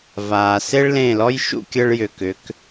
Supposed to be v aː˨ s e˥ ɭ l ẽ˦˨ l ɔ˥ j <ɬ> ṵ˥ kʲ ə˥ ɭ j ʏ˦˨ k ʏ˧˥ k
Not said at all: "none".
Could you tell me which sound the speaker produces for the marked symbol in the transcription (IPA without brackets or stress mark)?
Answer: ʃ